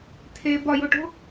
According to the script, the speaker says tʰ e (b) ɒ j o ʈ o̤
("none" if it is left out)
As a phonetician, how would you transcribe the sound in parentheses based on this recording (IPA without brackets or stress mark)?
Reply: b